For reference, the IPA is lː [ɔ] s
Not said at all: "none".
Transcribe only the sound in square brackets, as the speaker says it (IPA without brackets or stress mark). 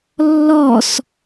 ɔ